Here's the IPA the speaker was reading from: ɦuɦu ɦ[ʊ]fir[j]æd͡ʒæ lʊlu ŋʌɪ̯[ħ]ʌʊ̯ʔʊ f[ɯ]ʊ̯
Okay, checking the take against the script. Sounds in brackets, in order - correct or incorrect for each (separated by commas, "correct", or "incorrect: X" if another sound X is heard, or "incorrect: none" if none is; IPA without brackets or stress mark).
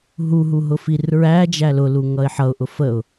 correct, incorrect: ɹ, correct, incorrect: ə